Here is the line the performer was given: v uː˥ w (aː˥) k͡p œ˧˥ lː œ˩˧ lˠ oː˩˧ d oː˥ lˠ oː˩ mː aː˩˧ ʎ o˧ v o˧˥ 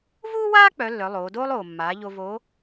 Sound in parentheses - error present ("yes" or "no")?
no